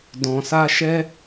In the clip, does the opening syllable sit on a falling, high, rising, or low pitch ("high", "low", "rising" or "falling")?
low